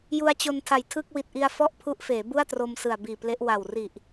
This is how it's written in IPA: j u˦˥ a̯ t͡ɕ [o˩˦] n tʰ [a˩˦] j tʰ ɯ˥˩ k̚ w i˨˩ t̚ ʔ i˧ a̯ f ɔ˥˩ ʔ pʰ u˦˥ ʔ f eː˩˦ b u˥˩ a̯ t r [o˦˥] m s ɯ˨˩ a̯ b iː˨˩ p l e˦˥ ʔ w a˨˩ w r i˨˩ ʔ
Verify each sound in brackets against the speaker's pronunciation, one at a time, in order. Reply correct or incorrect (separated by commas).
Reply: incorrect, incorrect, incorrect